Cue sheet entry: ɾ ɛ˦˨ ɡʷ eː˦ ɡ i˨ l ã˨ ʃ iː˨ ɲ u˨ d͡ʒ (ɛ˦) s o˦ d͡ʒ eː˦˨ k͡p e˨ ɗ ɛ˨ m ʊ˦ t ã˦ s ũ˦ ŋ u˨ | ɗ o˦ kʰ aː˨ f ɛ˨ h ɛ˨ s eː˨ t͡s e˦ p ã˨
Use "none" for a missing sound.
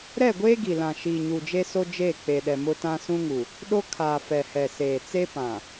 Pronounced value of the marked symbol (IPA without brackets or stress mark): e˦